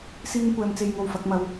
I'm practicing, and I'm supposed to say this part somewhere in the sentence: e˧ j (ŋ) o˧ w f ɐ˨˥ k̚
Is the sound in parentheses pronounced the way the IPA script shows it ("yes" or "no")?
yes